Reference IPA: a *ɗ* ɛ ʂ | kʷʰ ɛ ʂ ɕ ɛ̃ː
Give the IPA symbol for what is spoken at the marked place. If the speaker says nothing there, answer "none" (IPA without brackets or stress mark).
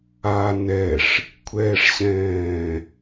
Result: n